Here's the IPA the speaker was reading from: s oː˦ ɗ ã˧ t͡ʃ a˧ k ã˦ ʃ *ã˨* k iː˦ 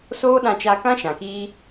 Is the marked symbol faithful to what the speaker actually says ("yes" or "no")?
yes